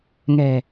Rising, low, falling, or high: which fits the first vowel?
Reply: low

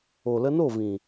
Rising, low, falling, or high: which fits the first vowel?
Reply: low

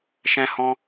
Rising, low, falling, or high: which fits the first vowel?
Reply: high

